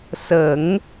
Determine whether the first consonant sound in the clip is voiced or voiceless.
voiceless